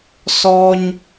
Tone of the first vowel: high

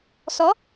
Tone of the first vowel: rising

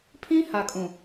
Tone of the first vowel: high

